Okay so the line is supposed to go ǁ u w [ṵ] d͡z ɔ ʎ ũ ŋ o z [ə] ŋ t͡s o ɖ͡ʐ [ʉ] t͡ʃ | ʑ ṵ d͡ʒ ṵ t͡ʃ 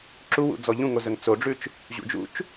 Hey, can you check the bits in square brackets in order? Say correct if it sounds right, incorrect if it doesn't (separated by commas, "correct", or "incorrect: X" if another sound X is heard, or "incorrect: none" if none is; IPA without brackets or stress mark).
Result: correct, correct, correct